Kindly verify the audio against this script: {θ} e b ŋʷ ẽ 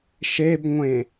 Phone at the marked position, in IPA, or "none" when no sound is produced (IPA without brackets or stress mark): ʃ